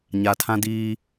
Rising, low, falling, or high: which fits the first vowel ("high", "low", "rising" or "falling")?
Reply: low